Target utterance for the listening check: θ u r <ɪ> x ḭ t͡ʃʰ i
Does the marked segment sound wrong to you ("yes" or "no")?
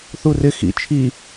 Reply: no